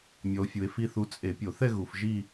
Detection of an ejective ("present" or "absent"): present